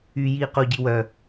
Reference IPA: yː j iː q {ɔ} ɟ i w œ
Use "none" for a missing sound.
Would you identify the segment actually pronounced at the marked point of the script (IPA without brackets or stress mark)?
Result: o